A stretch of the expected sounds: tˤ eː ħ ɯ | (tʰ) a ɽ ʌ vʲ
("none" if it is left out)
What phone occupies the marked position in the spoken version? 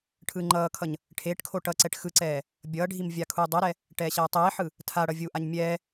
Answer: tʰ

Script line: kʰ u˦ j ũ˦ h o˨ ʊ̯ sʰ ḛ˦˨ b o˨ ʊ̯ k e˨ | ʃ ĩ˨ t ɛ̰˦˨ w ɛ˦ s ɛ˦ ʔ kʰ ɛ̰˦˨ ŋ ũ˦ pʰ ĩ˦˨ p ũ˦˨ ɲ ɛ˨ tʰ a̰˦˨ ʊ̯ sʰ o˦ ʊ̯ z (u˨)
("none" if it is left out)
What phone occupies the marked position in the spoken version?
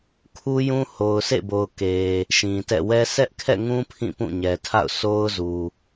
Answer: u˨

